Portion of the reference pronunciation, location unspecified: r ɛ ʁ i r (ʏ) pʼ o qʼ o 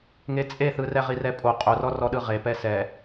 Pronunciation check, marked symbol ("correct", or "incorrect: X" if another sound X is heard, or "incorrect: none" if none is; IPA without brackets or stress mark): incorrect: ɛ